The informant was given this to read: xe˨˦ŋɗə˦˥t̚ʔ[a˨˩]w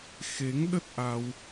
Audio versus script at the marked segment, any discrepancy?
yes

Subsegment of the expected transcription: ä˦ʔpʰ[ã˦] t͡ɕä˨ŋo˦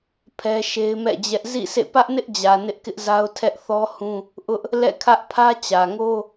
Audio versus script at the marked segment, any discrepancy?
yes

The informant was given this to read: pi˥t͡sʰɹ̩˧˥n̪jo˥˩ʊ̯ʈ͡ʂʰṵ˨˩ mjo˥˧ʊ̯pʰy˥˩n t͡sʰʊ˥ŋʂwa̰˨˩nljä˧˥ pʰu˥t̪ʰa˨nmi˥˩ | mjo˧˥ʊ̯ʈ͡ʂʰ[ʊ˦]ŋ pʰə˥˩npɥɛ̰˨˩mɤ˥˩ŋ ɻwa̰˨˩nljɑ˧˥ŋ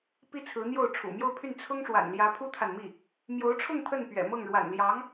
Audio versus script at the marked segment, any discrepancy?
yes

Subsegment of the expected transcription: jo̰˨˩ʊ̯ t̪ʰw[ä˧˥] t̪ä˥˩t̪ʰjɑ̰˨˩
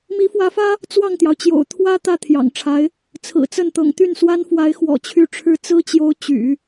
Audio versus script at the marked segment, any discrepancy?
yes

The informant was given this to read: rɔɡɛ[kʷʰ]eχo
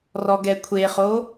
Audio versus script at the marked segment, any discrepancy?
no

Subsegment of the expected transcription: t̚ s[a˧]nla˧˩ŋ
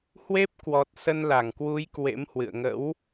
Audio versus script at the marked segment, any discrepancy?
yes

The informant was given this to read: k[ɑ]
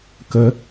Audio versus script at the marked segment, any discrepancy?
yes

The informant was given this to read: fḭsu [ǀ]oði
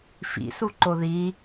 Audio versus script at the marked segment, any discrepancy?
yes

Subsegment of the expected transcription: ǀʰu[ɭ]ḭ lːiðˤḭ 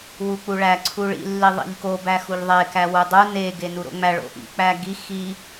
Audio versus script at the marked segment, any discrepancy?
no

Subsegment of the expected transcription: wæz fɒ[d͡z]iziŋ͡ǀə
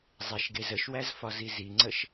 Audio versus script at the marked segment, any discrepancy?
yes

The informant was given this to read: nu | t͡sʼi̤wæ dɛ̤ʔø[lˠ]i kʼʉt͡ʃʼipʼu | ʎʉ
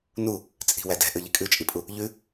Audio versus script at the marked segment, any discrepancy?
yes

